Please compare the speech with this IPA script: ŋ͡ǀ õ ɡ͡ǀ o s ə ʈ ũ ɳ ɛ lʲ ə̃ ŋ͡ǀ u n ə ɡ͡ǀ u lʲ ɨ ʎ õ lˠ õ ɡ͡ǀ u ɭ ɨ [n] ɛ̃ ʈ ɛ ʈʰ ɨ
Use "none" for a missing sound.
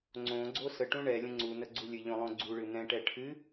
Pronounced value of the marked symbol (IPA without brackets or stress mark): n